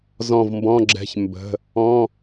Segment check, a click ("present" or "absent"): present